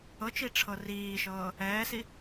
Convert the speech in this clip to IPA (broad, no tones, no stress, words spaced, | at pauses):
ɤt͡ʃi ʈ͡ʂʰɤriːʃɤː | ɛːsi